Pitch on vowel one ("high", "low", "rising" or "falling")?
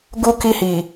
high